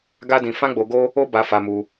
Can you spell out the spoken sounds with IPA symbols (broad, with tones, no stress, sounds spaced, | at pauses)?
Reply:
ɡ a˦ d ĩ˧ f ã˦ ɡ͡b o˧ ɡ o˦ | o˦ b a˧ f a˧ m u˧